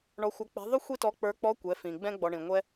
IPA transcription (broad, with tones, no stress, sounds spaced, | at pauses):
ɳ ɔ˧˥ xʷ ʌ˧˥ k͡p ɛ̤˧˥ ðˤ ʊ˥ xʷ i˥ t ɔ˧˥ k͡p ə˞˧˥ k͡p ɔ˧˥ kʷ ɛ˩˧ f ĩ˩ ɡ͡b ɛ̃˧ ɡ͡b ɔ˩ ɳ ĩ˩ ŋʷ ɛ˧